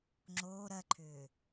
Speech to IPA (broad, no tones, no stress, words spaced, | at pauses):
ŋ͡ǁoː ɾɜǃʰʏː